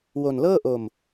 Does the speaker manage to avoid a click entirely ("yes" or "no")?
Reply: yes